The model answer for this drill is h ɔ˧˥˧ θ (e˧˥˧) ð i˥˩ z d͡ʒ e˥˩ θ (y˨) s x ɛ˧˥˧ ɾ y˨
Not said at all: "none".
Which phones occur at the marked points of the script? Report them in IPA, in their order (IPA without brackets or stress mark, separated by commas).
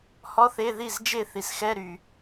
e˧˥˧, i˨